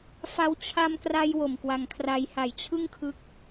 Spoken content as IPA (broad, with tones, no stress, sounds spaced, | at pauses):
f a˧ w t͡ɕʰ a˧ m k r a˧ j w o˨˩ m k w a˧ ŋ kʰ r a˧ j h a˨˩ j t͡ɕʰ ɯ˥˩ ŋ kʰ ɯ˦˥ k̚